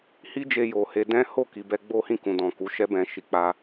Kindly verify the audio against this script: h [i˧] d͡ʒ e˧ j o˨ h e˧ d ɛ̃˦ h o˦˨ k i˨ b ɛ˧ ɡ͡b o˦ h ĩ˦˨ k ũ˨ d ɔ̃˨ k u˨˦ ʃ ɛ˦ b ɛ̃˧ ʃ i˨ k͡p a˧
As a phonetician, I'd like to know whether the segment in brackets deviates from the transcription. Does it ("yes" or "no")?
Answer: yes